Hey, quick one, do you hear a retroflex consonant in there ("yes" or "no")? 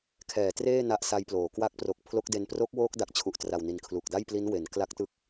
no